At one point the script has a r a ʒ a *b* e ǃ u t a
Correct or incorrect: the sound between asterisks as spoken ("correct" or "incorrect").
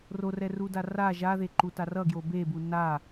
incorrect